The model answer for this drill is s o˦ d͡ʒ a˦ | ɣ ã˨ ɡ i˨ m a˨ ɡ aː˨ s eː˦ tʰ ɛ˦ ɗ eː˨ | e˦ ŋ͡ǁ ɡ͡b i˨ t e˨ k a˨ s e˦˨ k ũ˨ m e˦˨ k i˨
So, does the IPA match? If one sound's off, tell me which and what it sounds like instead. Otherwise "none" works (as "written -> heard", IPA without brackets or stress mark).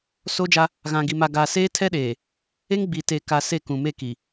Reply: ŋ͡ǁ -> ŋ